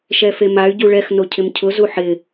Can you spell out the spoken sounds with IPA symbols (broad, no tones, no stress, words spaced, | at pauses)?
ʃɛfemay̯ ɟuɭɛx nocʰɪmcʰʊ zuħɪ